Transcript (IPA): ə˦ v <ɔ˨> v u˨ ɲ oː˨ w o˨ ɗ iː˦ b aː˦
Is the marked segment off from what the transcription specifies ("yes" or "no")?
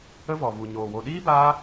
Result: no